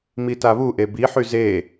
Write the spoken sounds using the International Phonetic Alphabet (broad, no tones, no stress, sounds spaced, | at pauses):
m i t a β u ʔ e b i ħ y z e